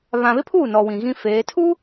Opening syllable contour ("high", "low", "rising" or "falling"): low